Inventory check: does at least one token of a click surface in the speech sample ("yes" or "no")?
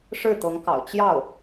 no